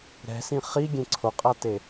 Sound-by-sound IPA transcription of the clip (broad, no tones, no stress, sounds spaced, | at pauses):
ɾ ɛ̤ s ĩ χ i ɡʲ ẽ ǀʰ o qʼ a t e